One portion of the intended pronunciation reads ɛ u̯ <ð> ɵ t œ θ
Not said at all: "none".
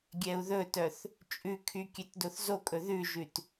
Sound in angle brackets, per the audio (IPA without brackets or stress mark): ð